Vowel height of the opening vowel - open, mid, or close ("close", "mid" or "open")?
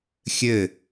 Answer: mid